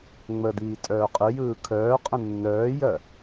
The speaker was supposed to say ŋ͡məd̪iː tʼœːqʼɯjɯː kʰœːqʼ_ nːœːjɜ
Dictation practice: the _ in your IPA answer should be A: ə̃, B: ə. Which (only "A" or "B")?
A